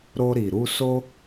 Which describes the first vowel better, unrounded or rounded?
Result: rounded